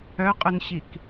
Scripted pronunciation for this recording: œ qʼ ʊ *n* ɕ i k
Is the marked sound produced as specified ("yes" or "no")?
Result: yes